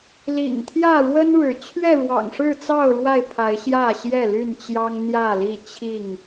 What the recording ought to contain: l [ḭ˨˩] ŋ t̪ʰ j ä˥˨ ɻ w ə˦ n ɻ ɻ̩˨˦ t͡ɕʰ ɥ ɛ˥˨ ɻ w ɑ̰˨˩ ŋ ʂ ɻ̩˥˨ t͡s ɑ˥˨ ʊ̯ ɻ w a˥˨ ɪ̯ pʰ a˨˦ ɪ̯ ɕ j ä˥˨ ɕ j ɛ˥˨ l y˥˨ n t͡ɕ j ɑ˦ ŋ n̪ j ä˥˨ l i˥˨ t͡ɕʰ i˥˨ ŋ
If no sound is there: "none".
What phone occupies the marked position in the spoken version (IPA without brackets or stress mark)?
ḭ˨˩